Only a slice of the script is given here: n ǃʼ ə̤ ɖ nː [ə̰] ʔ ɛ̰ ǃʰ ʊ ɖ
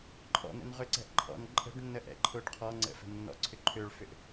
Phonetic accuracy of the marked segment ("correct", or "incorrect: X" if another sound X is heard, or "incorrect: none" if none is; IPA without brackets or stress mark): incorrect: ə